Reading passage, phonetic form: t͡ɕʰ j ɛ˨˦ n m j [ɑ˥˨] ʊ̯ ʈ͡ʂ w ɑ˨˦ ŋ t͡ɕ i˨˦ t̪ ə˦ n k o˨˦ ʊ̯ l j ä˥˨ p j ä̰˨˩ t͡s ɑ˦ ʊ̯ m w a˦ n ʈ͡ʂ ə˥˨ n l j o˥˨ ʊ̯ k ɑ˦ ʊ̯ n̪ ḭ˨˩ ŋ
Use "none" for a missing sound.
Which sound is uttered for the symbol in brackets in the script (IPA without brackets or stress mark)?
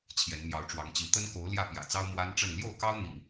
ɑ˨˦